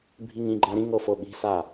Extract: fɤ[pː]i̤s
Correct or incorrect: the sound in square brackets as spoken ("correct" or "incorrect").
incorrect